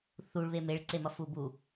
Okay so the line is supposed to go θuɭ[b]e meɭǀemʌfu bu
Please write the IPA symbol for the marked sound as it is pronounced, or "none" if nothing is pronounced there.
β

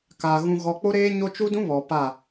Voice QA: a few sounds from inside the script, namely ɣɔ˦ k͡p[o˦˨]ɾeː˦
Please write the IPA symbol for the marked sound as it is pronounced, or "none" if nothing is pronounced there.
o˦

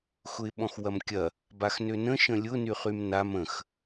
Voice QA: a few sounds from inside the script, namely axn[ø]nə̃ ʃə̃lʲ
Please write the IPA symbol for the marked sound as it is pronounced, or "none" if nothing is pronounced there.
ø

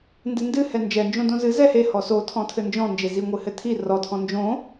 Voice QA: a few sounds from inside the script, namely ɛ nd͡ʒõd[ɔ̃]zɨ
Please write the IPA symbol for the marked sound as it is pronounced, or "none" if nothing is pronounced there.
õ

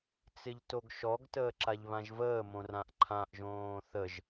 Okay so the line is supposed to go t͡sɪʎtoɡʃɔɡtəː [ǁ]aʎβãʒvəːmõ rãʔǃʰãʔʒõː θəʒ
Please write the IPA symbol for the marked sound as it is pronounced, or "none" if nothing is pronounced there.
ǁ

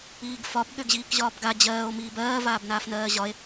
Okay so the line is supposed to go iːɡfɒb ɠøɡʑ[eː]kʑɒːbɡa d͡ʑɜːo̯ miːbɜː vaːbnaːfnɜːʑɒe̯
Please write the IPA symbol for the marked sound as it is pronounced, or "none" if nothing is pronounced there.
iː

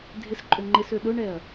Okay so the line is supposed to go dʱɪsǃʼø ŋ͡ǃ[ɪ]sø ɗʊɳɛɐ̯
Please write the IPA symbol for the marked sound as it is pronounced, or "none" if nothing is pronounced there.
ɪ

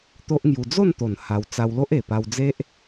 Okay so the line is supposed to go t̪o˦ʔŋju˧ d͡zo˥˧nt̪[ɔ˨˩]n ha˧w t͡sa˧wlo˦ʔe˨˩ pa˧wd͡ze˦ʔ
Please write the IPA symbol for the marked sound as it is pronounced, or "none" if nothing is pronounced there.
o˨˩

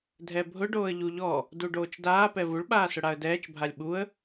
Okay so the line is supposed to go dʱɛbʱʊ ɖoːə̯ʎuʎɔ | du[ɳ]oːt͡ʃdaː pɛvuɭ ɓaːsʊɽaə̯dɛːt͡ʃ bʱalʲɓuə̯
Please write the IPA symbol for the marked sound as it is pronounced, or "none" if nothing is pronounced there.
ɖ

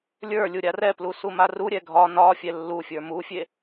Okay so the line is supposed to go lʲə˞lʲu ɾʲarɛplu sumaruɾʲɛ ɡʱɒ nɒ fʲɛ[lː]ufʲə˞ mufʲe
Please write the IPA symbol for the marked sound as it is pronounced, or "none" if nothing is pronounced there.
lː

